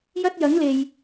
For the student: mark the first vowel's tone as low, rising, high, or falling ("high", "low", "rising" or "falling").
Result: high